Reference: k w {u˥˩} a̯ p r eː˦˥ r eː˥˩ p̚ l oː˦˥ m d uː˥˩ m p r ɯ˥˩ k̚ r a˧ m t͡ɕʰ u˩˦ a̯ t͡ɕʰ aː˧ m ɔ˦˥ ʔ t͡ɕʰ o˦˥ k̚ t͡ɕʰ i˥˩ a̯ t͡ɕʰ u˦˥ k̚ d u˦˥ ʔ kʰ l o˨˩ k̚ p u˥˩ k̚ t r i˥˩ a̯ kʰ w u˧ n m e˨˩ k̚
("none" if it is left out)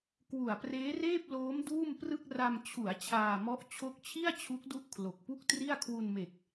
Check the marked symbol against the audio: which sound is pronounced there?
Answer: u˨˩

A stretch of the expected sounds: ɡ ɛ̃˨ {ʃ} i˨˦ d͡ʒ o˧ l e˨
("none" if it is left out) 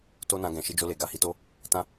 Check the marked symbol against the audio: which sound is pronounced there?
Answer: ʃ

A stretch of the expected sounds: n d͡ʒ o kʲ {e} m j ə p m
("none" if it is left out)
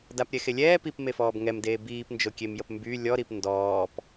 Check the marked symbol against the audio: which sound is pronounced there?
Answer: e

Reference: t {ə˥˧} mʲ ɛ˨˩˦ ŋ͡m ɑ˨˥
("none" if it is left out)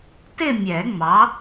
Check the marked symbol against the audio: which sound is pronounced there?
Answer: ɪ˥˧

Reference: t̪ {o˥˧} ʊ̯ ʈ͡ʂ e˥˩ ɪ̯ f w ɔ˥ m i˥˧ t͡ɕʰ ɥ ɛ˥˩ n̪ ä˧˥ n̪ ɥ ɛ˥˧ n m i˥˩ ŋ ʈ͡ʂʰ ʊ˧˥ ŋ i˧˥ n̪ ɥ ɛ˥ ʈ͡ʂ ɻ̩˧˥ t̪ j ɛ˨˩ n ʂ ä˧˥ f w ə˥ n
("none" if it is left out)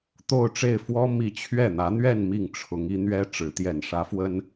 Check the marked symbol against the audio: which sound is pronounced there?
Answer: o˥˧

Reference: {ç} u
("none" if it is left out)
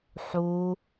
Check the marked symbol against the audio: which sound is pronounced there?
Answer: ħ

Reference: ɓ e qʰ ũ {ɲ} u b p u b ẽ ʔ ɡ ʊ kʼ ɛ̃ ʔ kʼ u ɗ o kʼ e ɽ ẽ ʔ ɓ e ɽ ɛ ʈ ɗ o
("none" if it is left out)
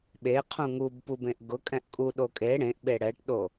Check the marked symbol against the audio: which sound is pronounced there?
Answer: ŋ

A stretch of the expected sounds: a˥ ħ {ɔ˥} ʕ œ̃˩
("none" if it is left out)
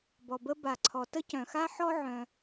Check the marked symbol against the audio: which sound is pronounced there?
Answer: ɔ˥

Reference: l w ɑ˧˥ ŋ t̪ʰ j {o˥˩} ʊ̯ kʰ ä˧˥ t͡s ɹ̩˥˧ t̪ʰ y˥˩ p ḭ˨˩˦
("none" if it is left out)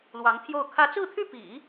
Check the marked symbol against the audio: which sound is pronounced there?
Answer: o˥˩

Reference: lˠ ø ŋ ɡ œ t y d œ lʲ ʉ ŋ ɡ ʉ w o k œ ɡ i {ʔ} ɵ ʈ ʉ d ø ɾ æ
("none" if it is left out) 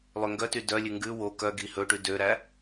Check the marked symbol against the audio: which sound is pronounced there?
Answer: h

